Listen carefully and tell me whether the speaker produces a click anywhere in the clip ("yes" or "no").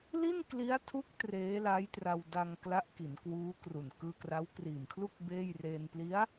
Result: no